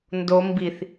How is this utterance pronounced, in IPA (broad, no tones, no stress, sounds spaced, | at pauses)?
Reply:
n d o m b i θ